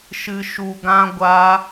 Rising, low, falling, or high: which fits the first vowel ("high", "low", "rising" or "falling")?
low